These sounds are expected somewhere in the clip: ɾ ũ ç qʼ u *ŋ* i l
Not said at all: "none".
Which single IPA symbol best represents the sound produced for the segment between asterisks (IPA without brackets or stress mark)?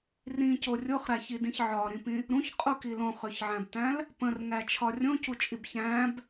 k